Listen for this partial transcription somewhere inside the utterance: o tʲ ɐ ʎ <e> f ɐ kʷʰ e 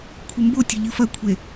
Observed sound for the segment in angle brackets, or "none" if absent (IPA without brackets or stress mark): ɨ